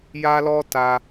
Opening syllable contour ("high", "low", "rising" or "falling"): high